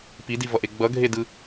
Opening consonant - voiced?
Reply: no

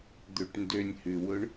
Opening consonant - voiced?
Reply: yes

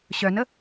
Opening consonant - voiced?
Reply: no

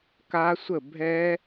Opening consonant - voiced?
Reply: no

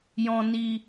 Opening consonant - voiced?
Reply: yes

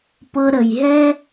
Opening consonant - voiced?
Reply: no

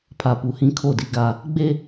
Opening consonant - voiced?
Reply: no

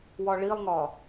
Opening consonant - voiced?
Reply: yes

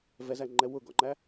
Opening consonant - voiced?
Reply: yes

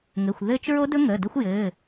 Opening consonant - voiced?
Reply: yes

